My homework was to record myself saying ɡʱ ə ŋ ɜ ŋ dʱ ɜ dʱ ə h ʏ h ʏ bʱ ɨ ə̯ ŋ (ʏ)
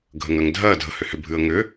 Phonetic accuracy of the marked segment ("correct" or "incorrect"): correct